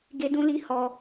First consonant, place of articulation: velar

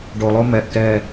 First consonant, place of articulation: retroflex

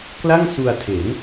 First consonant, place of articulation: velar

